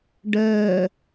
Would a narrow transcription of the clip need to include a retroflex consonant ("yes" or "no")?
yes